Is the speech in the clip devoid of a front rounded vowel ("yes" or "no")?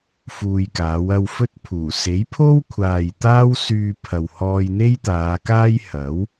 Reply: no